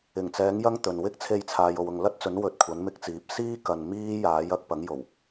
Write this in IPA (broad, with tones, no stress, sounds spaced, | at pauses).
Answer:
ɪ˨˩ ŋ t͡s ɛː˨˥ ŋ j ɐ˥ ŋ t̪ ɵ˨ n w ɪ˥ k̚ t͡sʰ e˧ j t͡sʰ aː˨ j o˨ w ʊ˨ ŋ l ɐ˥ t̚ t͡s ɵ˨˥ n w ɵ˨ t̚ kʷʰ ɐ˨˥ n m ɪ˨˥ k̚ t͡s iː˨˥ p̚ s iː˥ k ɐ˨ n m iː˥ j aː˨˥ j ɐ˧ k̚ p ɐ˨˥ ŋ j o˨˩ w